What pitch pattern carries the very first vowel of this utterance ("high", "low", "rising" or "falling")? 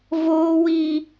high